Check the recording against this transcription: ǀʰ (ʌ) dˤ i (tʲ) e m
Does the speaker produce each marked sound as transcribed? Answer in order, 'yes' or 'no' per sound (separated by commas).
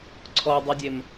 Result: no, no